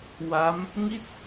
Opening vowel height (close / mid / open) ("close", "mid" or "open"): open